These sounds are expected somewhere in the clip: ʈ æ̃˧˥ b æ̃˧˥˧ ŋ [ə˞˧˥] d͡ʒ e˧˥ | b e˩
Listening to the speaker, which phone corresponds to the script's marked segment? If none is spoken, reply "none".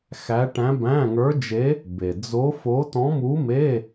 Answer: ə˞˧˥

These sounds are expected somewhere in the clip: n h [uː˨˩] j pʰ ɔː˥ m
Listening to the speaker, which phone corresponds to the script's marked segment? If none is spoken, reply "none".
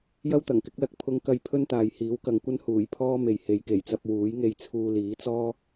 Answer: uː˨˩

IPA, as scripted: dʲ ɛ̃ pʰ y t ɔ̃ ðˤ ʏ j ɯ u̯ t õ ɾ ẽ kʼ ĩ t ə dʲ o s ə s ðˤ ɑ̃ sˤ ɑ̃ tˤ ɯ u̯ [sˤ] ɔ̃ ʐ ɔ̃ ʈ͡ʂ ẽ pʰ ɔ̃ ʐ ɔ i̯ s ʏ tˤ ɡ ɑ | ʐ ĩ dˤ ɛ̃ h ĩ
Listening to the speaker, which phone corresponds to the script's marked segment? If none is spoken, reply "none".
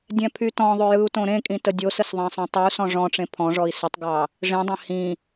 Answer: s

